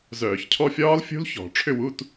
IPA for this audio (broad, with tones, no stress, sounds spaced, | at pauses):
z œː˧˩˧ ç cʰ ɔ˥˨ fʲ ɒː˥ l fʲ ṳ˥ l ç ɔ̤˧˩˧ ʈ͡ʂʰ ʏ˥˨ w u˧˥˧ t